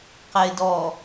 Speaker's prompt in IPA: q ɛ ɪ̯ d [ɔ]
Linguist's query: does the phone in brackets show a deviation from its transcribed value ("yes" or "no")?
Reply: no